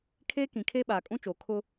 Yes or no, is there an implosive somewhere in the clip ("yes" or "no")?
yes